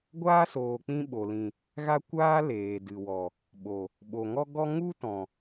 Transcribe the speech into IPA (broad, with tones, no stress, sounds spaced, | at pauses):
ɡʷ aː˦ s oː˨ k͡p ĩ˧ ɓ o˨ l ĩ˨ | ɣ a˧ kʷ aː˧ l eː˨ d ɨ˨ w ɔ˨ | ɓ o˨ | ɓ o˨ ŋ ɔ˦ ɡ ɔ˦ ŋ u˦ t ɔ̃˨